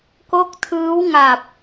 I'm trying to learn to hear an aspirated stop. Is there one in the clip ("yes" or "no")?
yes